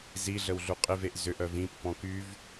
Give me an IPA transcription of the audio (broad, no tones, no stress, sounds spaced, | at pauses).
z i ɮ ə w ɮ u qʼ ɪ v e ʔ z ʏ ʔ œ v ĩ pː ɔ̃ k y v